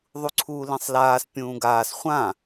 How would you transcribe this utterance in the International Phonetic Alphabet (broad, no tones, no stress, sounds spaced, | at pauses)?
ðˤ u ǀʰ uː l ĩ sˤ l aː s pʲ ũː ɡ aː s χʷ ã